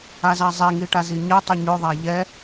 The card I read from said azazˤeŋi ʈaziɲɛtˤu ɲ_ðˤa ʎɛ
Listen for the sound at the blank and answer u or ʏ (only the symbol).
ʏ